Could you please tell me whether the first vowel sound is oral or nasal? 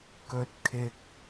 oral